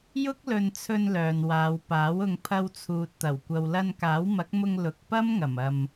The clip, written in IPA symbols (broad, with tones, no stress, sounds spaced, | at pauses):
j ʊ˥ k̚ l ɵ˧ n t͡sʰ ɵ˧ n l œː˨ n w aː˨˧ w p aː˨˥ w ʊ˧ ŋ pʰ ɐ˧ w t͡sʰ uː˨ t̚ t̪ ɐ˨˩ w kʷ ɐ˨ w l ɐ˧ n k aː˨˥ w m ɐ˨˥ k̚ m ʊ˧ ŋ l ʊ˨ k̚ p ɐ˥ m ŋ ɐ˨˩ m ɐ˨ m